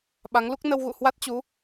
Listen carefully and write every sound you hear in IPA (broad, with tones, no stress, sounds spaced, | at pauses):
ɓ a˨˦ ŋ l u˦˥ k̚ n ə˧ w ɣ ṵ˧˨ h w a˦˥ t̚ t͡ɕ u˨˦